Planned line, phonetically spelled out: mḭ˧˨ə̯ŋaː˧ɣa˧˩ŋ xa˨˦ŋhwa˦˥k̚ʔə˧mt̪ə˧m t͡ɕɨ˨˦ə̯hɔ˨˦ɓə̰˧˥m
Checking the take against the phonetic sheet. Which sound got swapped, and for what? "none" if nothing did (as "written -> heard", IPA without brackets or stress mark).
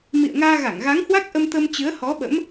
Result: x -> ɣ